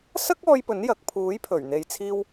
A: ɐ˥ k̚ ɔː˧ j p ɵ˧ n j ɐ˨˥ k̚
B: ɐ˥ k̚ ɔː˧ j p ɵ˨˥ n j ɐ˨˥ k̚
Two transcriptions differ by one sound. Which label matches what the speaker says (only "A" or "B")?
B